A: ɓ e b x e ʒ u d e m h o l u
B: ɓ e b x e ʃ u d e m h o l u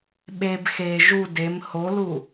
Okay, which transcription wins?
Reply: A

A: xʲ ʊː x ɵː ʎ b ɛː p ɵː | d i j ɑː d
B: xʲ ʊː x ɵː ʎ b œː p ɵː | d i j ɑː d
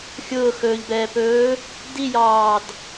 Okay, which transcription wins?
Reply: A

